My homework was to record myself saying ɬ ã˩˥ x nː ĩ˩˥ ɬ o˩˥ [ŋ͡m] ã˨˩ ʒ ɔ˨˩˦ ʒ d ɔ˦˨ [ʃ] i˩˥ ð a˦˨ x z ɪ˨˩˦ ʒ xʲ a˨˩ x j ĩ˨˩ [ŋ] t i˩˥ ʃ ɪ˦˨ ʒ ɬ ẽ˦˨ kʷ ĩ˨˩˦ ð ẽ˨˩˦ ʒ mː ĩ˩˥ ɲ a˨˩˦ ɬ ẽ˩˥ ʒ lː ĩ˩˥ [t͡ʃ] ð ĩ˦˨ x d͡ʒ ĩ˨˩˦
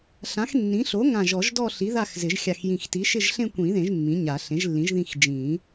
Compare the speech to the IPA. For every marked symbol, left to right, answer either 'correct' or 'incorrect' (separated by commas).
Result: incorrect, incorrect, incorrect, incorrect